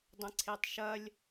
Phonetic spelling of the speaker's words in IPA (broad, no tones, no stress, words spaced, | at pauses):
dˤə̃ǀʰetˤʃɐlʲ